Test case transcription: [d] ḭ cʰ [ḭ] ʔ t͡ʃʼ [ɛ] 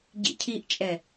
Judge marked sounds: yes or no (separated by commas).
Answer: no, no, yes